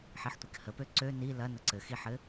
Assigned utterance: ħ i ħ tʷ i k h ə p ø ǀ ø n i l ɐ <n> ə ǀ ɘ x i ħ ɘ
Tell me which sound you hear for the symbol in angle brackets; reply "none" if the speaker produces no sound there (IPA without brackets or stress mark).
n